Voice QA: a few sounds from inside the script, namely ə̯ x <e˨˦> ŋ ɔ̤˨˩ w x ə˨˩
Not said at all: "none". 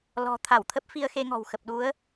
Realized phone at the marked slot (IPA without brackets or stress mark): e˧